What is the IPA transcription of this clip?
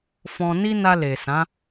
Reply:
fɔ̃˧ ni˦na˧le˨sã˨˦

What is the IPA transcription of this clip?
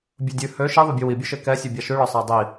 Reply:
bʲɵdʲʉ hø ʃiðˤøbʲu wibʲʉʃe kɛsʲu bʲaʃʉɭɔ sˤadˤi

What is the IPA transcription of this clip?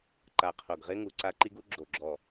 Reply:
ǃa˨˩qʰo˨˩ɡʁɪ˦˥ŋu˨˩ ǀa˦˥ǃi˦˥ɡu˦˥ ɡ͡ǁo˨˩ɡ͡ǁɔ˨˩

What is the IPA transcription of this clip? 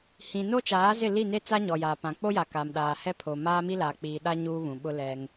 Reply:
hĩ˨no˦t͡ʃaː˨˦zɪ˦˨ li˦˨ne˦ t͡sa˦ɲɔ˨jaː˨pã˨ k͡po˦ja˨kaː˨m ɗaː˨hɛ˦pʰo˨ maː˦mi˦la˨k͡piː˨ ɗa˦ ɲuː˦βũ˨ ɓʊ˦ lɛ˦ŋ

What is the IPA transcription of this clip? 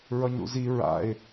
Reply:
ɹʌɲɾṵzi ɹa̰ɪ̯

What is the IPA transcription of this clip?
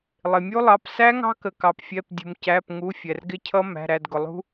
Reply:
lˠɪ˩mʲu˦˥lˠɑ˩˧˩p sæ˦˥ŋɑ̤˦˥kə˩kɑ˩p fʲɛ˩˧˩p dʲṳ˩mcæ˩˧˩pŋu˩˧˩ fʲɛ˩rɡɪ˦˥cʰʌ˦˥ mæ̤˩˧˩ɾæ˩˧˩dɡʊ˩lˠṳ˦˥

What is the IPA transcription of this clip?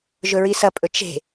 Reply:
ʒɵɹisɐpʼɵ t͡ʃe̤

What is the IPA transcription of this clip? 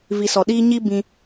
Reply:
vi˨ sɔ˨ɗiː˧ ɲi˦bĩ˧

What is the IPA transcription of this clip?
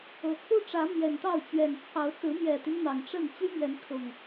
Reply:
ɤ˨˦ kʰu˦ʈ͡ʂä˨˦ mjɛ˨˩nt̪ɑ˥˨ʊ̯t͡ɕɥɛ˨˩n t͡sʰɑ˨˦ʊ̯t͡sɹ̩˨˦mjɛ˨˩t̪y˦n n̪ɑ˨˩ŋ ʈ͡ʂə˥˨n t͡ɕy˦mɥɛ˨˦nkʰʊ˨˩ŋ

